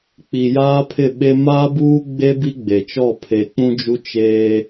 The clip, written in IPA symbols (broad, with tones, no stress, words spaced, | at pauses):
k͡pi˨jaː˦pʰɪ˦˨ɓe˦ maː˦buː˦ɡ͡be˦ bi˦ɡ͡be˨t͡ʃɔ˦˨ pʰe˨k͡pũ˦d͡ʒu˦ t͡ʃe˦